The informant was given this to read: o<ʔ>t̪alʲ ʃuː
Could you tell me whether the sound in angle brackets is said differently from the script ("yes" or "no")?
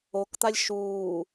yes